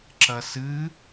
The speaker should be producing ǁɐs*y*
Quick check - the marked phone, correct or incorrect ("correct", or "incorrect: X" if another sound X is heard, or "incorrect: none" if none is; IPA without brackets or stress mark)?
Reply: incorrect: ɨ